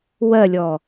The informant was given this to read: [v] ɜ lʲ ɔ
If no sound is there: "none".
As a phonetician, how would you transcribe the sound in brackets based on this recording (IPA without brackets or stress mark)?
w